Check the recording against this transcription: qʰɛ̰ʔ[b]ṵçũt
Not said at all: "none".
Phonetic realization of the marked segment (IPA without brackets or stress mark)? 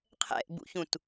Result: b